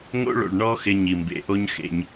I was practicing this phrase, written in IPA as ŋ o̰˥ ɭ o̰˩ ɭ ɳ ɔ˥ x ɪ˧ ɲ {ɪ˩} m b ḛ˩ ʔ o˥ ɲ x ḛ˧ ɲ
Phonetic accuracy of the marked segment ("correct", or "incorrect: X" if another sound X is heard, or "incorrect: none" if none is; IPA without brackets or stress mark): incorrect: i˩